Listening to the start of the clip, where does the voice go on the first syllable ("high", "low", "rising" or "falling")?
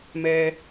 high